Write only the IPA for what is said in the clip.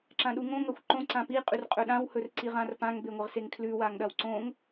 ǁãɗuŋõ ŋɐxʷǃõ ǀãpi qʼʉrqʼɵɗãw hɵrǀiʁãrpãŋ beŋʷɐʁseŋkʰlʉ waŋɗɐwǀõŋ

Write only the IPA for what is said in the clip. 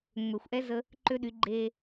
ŋ͡mø˨xʷʔɛ˦zə˧ | ǃø˦ɗy˨˦ ɡ͡ǃe˧

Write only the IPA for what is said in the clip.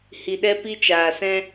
hi˨ɗɛ˦ pi˦t͡ʃaː˨sɛ̃˦

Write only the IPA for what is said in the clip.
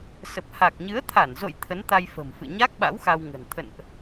sə˨˩p̚ha˨˩k̚ɲɨ˨˦ə̯ t̪ʰa˧˩nzo̰˧˨j t̪ʰə˨˦nt̪a˧j fə̤˨˩mfɨ̰˧˨ ɲa˦˥k̚ɓa̰˧˥w xa˧wŋə̤˨˩n t̪ʰə̰˧˨nʔ

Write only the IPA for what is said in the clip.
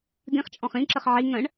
d̪ĩχt͡ʃʼɔ̃χ ĩǁəχ ʕi ŋə̃ɳ

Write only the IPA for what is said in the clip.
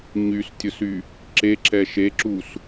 ɲystʲʊsy | ǁeǁɛ ʃeǁus

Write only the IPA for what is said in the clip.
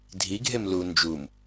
dʱiɡʱem lu nd͡ʒum

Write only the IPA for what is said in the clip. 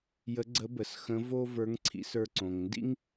jə˧˥ɡ͡ǀə˧˥bə˩˧s xə̃˧˥vo˥ və˞˧˥ŋǀʰḭ˧˥sə˞˧ ǀõ˩ŋndḭ˥ŋ

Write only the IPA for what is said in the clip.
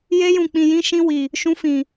je˦jũ˧k͡pĩ˧ jĩ˦ʃĩ˦ wi˧ | ʃũ˦fĩ˧

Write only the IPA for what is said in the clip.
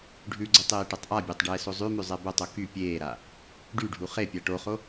ɖʱʉɡ͡ǀʏ tˤeːʈɛtˤʔabʲatˤ ɖɛːsozˤʉmʉ zˤɛbotˤo ky pʲeːɾa | ɖyɖʱu χepʲa ʈoχo

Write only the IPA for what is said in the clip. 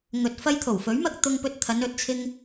ŋɵ˨t̚ fɐ˧jt̪ʰo˨˩wfɵ˨˥ɥmɐ˧k̚ t̪ʊ˧ŋ pɵ˧t̚t̪ʰɐ˨˧nɵ˨˥t̚t͡sʰɪ˧ŋ

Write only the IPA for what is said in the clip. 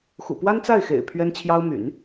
xṵ˨˩ pwa˥nt͡sa˥˩ɪ̯ xḛ˨˩ɪ̯ pʰɥɛ˥nt͡ɕʰjɑ˥ʊ̯ my̰˨˩˦n

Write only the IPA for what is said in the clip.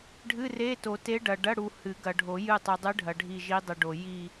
ɖʱɨ˧˥˧re˧˥˧ to˨˩˦te˧˥ ɖɐ˨ ɖɐ˧˥˧ɽu˨ hɨ˨˩˦ɡɐ˨ɖʱo˨˩˦ jɨ˦˨tˤu˨ dˤɨ˧˥ɖʱɐ˨ ɖʱi˦˨ʒi˧˥dˤɨ˨ɖo˨ ji˦˨

